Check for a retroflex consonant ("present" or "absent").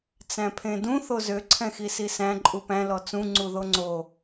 absent